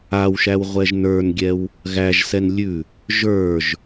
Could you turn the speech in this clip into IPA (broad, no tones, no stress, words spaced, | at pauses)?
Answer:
awʃæw ʁʷɛʒnə˞nɡʲɛw | ɣæʒsɛn lʲʉ | ʒə˞ʒ